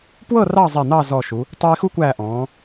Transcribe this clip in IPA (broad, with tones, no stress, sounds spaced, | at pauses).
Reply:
p w ɤ˥˧ r ɑ˥˧ zˤ ɛ˧˩ n̪ ɑ˥˧ z ɔ˧˩ ʃ u˩˧ | tˤ u˧ ɪ̯ x u˥ kʷ æː˧˩ ʔ ɔ̃ː˩˧